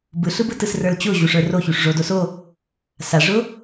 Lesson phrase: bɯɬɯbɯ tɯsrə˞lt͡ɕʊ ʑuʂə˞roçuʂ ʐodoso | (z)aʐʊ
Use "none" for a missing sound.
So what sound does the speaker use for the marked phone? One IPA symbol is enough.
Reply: s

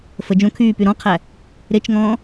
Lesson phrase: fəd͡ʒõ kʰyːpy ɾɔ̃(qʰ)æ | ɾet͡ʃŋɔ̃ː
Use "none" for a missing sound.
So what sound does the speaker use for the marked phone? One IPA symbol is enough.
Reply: qʰ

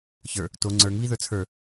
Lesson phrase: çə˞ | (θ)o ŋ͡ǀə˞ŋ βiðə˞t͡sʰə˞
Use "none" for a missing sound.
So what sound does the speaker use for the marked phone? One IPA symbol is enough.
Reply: t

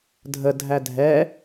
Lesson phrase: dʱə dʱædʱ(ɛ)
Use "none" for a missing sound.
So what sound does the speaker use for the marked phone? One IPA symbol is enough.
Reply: ɛ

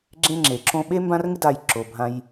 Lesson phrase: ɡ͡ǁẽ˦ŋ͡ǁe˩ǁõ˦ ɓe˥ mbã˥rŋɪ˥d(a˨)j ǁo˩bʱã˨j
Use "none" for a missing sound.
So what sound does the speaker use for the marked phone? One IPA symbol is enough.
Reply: a˨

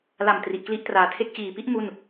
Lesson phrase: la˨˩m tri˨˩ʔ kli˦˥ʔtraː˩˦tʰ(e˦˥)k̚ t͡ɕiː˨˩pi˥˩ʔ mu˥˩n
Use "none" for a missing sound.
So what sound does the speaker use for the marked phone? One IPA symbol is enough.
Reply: e˥˩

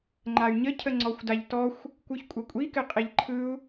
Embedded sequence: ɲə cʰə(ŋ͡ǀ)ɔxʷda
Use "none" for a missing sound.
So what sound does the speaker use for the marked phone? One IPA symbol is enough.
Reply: ŋ͡ǀ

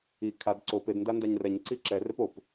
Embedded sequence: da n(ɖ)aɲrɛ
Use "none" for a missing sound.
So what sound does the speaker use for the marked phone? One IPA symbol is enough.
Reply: d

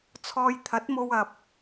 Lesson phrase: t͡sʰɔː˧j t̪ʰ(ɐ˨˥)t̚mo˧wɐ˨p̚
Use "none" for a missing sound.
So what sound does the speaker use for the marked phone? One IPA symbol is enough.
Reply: ɐ˨˥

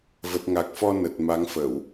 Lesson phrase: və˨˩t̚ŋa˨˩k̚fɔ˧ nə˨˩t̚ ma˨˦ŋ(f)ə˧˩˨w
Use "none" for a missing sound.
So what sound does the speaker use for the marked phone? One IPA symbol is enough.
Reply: f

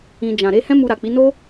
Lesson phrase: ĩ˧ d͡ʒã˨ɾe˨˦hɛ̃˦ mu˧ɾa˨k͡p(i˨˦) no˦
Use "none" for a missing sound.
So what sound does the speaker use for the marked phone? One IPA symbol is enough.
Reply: i˨˦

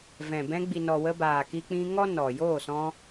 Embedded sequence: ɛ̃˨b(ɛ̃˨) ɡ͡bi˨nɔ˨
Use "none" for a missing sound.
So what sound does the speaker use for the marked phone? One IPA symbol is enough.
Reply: ɛ̃˧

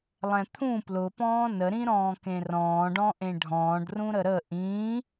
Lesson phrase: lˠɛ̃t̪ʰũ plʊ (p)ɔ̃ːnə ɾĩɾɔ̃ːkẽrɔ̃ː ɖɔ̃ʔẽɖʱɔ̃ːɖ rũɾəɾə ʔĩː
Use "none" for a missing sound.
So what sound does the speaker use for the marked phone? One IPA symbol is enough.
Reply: p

